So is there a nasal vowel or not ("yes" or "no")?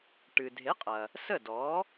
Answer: no